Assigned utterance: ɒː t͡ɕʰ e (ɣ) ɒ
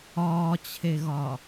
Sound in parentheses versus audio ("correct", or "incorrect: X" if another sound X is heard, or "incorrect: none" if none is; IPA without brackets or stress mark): correct